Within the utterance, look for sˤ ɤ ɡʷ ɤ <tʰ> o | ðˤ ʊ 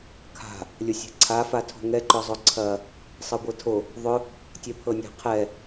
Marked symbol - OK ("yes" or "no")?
yes